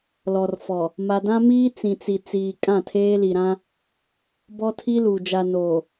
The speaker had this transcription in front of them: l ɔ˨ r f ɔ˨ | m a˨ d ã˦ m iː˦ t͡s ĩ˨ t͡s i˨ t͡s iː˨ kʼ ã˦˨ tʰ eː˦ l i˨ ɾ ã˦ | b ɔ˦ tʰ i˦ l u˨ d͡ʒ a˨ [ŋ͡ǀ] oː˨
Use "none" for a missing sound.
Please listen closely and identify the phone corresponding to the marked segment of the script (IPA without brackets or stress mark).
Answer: n